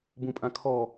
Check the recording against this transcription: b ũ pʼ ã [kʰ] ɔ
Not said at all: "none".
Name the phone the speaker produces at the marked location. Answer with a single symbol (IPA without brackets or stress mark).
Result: kʰ